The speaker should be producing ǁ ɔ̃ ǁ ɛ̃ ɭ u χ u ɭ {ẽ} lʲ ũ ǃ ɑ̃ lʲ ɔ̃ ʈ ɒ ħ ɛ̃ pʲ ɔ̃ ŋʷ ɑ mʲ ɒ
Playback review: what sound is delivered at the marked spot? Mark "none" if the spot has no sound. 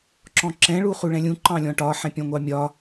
ɛ̃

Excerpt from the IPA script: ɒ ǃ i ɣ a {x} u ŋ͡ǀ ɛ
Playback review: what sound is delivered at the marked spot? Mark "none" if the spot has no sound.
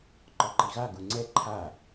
ɡ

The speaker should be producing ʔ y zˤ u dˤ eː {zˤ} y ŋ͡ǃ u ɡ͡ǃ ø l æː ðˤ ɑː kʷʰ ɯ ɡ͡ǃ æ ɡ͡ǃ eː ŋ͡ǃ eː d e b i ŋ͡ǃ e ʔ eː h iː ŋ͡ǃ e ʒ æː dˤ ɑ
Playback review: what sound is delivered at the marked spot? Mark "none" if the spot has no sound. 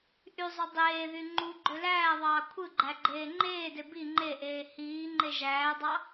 ð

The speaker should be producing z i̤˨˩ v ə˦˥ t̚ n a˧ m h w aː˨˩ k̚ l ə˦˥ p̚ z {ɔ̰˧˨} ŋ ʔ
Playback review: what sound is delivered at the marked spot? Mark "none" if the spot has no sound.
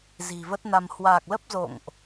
o̰˧˨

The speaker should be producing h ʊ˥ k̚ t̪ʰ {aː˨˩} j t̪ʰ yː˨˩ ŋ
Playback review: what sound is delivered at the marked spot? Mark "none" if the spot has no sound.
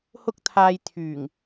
aː˧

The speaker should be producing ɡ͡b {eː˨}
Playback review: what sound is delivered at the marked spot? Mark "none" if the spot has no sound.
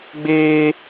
eː˦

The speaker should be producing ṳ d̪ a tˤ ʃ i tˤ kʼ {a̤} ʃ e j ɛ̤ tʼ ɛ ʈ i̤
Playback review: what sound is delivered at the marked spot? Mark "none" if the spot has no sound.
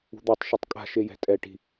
a̤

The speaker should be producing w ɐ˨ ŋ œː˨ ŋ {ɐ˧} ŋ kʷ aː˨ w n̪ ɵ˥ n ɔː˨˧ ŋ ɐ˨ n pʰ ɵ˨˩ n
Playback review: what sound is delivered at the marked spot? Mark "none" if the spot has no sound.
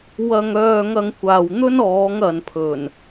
ɐ˧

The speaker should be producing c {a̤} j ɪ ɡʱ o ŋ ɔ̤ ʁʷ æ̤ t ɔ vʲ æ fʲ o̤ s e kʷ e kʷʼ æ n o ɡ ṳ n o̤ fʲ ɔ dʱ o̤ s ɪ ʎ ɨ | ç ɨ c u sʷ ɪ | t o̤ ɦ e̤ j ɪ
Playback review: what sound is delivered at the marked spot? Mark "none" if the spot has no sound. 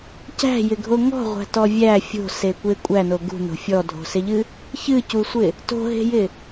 æ̤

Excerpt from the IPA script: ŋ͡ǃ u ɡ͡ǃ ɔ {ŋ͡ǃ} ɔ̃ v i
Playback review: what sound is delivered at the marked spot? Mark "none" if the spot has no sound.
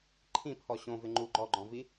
ɡ͡ǃ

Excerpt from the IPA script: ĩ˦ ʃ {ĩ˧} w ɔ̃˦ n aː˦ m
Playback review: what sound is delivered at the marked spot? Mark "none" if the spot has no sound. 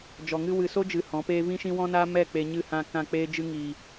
ĩ˦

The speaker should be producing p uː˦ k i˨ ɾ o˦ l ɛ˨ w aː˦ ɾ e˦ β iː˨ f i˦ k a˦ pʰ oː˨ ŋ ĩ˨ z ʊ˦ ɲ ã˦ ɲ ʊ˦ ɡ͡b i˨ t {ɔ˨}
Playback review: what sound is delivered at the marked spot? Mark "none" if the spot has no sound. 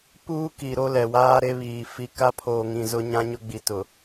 ʊ˨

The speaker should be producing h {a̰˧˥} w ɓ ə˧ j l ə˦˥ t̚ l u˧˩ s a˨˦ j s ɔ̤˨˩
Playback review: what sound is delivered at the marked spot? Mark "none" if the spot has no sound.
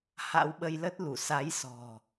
a̰˧˥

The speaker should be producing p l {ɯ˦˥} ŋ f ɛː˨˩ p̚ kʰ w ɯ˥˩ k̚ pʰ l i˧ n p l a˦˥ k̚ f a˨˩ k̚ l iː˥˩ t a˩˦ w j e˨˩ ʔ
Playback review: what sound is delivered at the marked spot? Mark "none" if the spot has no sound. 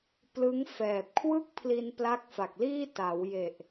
ɯ˦˥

